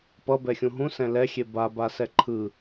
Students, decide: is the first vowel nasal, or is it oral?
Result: oral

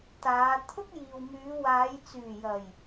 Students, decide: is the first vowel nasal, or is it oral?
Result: oral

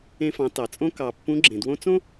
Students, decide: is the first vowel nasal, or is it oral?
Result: nasal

